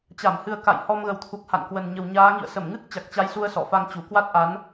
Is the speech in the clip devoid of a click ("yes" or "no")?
yes